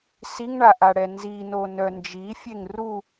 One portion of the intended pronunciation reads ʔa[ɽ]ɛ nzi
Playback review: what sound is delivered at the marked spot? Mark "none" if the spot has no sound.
ɽ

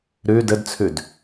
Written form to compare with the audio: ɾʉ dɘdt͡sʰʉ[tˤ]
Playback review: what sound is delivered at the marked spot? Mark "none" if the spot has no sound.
d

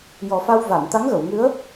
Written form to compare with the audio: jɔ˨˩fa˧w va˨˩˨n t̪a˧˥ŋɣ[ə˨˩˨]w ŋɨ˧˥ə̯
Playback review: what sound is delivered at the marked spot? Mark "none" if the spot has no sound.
ə˨˩˨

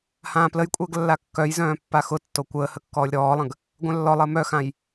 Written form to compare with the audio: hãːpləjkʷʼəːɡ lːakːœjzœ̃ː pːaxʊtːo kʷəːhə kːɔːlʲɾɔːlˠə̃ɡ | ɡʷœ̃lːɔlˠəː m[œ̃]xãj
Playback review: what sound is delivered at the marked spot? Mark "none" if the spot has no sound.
œ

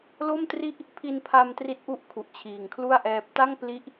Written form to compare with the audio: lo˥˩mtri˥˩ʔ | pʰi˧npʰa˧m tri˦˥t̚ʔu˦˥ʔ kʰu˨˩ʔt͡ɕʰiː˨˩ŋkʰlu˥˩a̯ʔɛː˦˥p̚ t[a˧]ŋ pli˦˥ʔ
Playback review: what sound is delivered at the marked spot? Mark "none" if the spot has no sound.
a˥˩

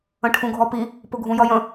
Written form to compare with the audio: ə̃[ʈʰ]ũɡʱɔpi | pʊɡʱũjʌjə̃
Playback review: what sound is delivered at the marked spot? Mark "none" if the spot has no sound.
ʈʰ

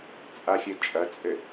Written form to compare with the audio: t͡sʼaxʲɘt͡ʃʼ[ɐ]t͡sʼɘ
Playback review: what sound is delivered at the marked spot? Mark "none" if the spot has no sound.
ɐ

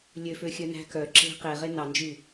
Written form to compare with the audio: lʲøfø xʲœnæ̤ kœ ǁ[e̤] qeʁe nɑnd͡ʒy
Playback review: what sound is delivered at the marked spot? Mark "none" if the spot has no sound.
e̤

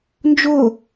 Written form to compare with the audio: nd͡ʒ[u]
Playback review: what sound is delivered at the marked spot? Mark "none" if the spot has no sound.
o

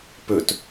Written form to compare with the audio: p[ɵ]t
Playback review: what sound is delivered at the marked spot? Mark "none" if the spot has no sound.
ɵ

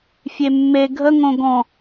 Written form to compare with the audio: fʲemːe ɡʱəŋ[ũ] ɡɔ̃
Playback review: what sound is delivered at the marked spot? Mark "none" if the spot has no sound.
õ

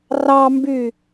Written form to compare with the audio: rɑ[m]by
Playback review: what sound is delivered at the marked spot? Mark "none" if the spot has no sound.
m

